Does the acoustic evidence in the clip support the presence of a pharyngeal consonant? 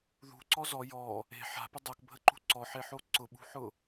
yes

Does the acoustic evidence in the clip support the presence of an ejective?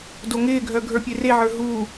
no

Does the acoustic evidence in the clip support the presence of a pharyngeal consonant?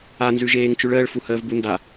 no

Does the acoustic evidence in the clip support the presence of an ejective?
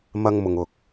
no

